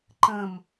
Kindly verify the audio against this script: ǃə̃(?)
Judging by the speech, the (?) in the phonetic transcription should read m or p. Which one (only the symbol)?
m